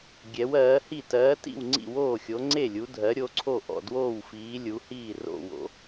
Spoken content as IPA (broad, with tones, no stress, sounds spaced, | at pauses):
ɡʲ ɛ˨˦ w ɜː˨˦ h i˥˨ t ɜː˨˦ t ḭ˥˨ w ŋ͡ǀ ḭ˥˨ w oː˥˨ xʲ o˨˦ ŋ͡ǀ e˥˨ lʲ u˨˦ dʱ ɜ˨˦ ɾʲ o˨˦ ǀʰ o˥˨ ʔ ɔ̰˥˨ d w oː˥˨ w f iː˨˦ lʲ u˨˦ h iː˥˨ r o̰˥˨ w o̰˨˦